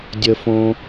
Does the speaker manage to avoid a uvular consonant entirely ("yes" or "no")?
yes